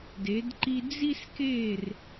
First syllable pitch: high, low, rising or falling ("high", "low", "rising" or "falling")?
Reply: rising